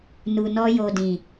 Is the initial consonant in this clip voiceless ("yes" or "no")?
no